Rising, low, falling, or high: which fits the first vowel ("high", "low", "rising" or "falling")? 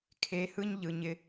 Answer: rising